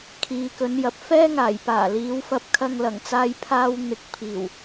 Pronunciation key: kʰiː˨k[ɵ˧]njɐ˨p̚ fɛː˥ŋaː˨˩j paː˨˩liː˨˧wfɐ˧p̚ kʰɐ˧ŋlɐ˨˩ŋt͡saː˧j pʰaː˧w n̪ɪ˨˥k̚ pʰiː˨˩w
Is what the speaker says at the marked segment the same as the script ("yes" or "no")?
no